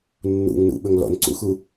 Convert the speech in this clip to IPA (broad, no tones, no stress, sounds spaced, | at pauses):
nː ṵ ŋ n ṵ ɓ ɵ ŋ l ɔ̰ n ǀ ṵ x u